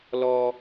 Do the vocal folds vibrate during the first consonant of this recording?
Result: yes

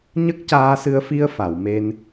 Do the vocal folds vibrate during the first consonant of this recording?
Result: yes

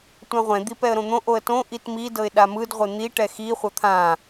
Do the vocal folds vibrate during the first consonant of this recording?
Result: no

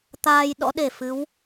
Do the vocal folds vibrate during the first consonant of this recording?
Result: no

